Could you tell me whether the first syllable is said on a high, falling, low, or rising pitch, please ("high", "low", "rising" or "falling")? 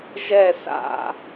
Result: falling